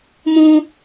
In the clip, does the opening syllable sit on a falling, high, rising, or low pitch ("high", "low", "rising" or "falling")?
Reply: high